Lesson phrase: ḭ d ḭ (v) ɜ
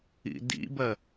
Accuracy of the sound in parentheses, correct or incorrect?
incorrect